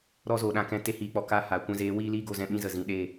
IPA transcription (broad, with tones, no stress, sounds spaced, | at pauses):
ɾ ɔ˧ z o˨ ɗ ã˨ k ɛ̃˧ t e˦ h iː˨˦ k͡p ɔ˨ k a˦ h a˨˦ kʷ ɛ̃˦ z eː˨˦ w iː˦ l iː˦ ɡ o˧ z ɛ̃˧ ɓ ĩ˦ z ə˨ z ĩ˨ ɗ e˦˨